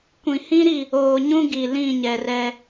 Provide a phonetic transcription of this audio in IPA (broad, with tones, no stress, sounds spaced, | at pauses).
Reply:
kʷ ĩ˨ h ĩ˦ ɾ i˦˨ | oː˨ ɲ ũ˦ ɡ i˨ l ĩ˦˨ ɲ ɛ˨ r ɛ˦